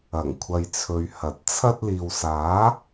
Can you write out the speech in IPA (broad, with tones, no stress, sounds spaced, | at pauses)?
ɐ˨˩ ŋ kʷʰ ɐ˨ j t͡sʰ ɵ˨ ɥ h ɐ˨ t̚ t͡sʰ ɐ˧ t̚ l iː˨ w s aː˨˥